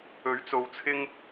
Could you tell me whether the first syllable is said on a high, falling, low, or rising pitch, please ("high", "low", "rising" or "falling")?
rising